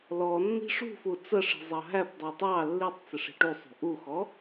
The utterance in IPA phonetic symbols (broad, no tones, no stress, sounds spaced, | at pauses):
l ɔ nː i̤ ʂ ṳ f u t͡s ə ʂ i̤ zˤ ɑ ɦ æ p dˤ i tˤ ɑ lː i tˤ t͡s ɪ ʂ i̤ ʈ u sˤ ṳ ʔ u x ɔ